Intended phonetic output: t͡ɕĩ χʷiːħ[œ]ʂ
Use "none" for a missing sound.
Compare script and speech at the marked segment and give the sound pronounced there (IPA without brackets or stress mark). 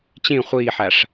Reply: æ